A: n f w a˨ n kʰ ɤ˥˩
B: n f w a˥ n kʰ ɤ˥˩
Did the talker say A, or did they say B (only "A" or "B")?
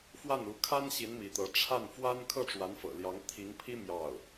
B